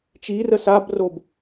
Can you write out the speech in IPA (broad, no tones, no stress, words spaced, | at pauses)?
t͡ʃirə sabrob